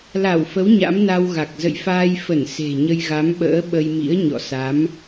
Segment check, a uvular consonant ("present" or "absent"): absent